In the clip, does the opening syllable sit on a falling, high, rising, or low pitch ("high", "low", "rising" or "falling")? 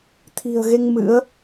low